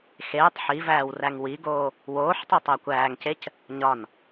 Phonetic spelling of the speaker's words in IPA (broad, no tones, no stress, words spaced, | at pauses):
xeːtˤ ħivæːw ræŋwiɡoː | woːħtˤu tˤækʷæːŋcec | ɲɒn